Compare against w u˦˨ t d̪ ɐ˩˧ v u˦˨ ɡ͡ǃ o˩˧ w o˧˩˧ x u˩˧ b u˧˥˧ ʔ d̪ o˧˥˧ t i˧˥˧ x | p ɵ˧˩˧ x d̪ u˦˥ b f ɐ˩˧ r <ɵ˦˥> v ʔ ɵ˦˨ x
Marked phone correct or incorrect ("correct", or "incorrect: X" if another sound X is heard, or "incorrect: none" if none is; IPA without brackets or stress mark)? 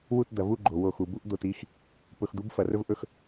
correct